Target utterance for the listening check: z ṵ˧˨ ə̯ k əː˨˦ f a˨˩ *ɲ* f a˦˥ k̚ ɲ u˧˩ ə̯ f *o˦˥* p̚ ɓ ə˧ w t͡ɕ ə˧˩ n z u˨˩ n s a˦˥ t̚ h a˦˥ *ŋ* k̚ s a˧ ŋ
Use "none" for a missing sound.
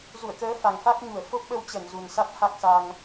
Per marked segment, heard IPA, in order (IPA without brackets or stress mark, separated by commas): ŋ, o˦˥, none